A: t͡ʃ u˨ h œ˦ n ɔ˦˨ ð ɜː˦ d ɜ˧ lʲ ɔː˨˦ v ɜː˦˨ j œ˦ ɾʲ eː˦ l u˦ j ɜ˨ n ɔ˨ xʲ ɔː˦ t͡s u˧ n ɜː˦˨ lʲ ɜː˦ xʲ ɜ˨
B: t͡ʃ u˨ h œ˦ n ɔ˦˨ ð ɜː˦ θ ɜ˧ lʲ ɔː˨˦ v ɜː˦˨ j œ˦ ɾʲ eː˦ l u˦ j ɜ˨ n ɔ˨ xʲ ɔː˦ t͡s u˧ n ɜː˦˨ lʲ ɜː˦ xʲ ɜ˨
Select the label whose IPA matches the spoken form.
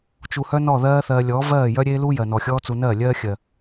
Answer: B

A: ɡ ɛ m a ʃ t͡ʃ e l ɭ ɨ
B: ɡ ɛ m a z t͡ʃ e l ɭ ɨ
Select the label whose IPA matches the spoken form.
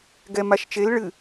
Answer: A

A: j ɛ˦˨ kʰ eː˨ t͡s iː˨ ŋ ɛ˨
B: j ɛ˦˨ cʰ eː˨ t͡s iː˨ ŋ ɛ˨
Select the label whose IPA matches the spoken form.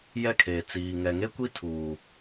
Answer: A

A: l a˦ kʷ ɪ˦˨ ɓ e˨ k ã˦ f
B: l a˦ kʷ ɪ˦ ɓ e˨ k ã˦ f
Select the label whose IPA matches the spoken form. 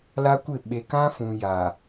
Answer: A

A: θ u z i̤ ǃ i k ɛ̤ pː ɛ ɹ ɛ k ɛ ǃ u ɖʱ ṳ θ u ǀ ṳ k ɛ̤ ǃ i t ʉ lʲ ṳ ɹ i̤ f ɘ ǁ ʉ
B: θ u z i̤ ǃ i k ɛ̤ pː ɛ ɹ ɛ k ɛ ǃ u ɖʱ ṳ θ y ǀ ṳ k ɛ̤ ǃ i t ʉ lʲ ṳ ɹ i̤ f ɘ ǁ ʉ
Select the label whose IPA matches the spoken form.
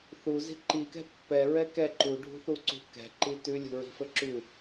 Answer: A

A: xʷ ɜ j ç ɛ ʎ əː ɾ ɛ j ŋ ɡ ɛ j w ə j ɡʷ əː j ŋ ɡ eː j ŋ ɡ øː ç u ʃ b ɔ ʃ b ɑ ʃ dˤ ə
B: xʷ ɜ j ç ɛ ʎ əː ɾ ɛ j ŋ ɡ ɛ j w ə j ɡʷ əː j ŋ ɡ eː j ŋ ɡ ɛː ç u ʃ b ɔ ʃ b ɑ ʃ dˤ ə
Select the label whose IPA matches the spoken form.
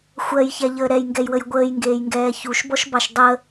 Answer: B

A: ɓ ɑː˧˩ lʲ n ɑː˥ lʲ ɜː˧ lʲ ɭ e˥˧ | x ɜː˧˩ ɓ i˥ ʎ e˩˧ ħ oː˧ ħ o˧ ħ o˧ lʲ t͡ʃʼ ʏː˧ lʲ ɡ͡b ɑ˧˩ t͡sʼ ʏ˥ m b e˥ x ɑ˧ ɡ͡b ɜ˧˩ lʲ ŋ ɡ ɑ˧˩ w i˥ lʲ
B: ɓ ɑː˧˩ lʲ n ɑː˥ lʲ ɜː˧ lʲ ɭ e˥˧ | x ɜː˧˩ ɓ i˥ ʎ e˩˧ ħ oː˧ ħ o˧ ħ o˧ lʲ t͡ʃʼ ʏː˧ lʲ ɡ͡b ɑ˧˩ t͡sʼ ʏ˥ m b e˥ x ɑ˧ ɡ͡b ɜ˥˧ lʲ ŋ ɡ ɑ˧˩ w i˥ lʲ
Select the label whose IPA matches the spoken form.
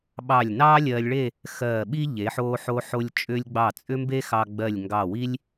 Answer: A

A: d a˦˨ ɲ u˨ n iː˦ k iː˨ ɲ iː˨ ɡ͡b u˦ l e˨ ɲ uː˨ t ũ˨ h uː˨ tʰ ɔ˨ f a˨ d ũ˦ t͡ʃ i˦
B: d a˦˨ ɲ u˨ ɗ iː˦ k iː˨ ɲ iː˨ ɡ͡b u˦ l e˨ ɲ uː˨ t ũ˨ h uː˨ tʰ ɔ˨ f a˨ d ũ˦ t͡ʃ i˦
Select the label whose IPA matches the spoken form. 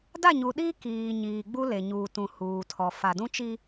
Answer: B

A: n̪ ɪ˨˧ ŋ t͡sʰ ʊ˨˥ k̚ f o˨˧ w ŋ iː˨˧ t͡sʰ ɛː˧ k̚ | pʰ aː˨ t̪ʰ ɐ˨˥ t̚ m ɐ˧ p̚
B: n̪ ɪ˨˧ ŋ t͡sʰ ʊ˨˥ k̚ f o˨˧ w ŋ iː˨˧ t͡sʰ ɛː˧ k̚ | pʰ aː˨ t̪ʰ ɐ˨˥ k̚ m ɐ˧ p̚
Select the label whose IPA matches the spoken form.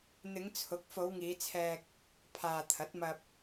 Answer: A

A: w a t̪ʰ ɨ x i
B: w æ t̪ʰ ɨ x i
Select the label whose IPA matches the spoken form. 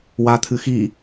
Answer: A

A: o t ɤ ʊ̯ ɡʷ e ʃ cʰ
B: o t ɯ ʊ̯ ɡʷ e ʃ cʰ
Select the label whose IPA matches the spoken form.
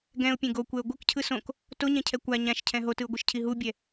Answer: B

